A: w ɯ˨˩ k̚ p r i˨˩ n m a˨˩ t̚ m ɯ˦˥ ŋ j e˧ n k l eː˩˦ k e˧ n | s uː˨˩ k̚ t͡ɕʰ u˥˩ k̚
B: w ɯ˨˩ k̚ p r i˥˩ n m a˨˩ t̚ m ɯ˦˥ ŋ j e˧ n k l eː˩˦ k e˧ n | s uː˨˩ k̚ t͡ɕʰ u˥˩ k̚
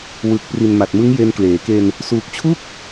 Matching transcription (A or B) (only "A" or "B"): A